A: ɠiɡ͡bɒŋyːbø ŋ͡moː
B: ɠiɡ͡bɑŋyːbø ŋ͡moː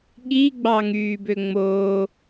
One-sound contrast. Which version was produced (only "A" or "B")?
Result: B